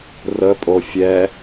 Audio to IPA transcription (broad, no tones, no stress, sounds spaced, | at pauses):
r ə pʼ o fʲ ɛ